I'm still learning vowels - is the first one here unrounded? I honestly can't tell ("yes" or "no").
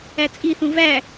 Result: yes